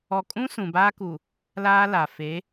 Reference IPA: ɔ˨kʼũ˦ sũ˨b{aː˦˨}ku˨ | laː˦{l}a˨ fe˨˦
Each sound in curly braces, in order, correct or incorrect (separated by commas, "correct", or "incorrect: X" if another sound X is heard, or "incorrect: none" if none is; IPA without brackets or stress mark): incorrect: aː˦, correct